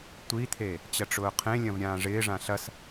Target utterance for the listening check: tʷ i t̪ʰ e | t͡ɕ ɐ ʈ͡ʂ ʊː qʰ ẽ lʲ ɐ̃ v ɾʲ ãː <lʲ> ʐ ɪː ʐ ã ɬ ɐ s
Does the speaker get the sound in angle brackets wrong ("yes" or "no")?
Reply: yes